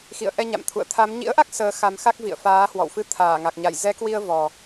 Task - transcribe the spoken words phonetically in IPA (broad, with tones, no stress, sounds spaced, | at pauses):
x ḭ˧˨ ə̯ ʔ ɛ˧ ɲ a̰˧˨ m t̪ʰ ṵ˧˨ ə̯ t̪ʰ a˨˦ m ɲ ḭ˧˥ ə̯ ʔ a˦˥ k̚ s əː˨˦ x a˨˦ m x a˦˥ k̚ v ḭ˧˨ ə̯ f aː˨˦ h w ɔ̰˧˨ w f ɨ˧ t̪ʰ aː˧˩ ŋ a˨˩ k̚ ɲ a˧˩ j z ɛ˨˦ k w i˧ ə̯ v ɔ˨˩